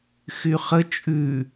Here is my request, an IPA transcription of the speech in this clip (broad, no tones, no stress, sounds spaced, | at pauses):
x y χ ə t͡ʃʼ ʉ